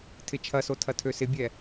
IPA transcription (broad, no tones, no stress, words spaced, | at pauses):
tʰɪt͡ʃʰɐso tʰɐtʰøsɪbʲɛ